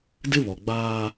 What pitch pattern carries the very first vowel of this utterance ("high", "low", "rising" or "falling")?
high